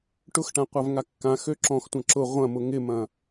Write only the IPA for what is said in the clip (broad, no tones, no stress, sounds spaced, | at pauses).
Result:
ʈ ʊ x ʈ ã qʷ a v ŋ a kː ã x ø ǁ ɔ̃ x tʷ ɐ̃ ǁ ʊ ʁʷ ɐ̃ m ʊ ŋ ɪ m ɐ̃